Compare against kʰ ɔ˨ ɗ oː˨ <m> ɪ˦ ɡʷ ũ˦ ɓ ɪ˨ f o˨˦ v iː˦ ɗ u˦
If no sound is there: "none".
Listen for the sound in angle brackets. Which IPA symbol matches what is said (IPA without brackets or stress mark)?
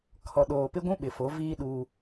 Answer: p